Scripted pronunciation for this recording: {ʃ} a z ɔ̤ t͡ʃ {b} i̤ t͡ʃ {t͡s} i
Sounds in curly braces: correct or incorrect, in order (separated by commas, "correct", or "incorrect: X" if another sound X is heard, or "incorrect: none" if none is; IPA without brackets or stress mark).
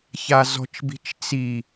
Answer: incorrect: ç, correct, correct